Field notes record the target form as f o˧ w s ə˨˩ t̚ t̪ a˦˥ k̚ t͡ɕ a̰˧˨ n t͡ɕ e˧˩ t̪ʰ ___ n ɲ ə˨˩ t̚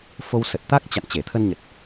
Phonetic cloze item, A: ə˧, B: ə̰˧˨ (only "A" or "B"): A